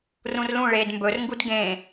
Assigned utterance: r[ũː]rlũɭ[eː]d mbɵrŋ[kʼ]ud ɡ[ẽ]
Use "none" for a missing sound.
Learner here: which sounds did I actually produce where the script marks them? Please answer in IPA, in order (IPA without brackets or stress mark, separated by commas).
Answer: ũ, eː, ɡ, ẽ